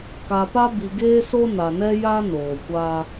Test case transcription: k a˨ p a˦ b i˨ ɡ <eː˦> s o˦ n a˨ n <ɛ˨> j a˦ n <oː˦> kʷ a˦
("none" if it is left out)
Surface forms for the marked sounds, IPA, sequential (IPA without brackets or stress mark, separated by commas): eː˦, ɛ˦, oː˨